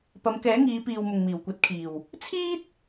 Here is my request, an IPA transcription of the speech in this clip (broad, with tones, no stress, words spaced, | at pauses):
pɐ˨˧mkɛː˨˥ŋiː˨˧ piː˨w mʊ˨ŋmiː˨˩wkʷɐ˨˥t̚kʰiː˨˩w | t͡sʰiː˥t̚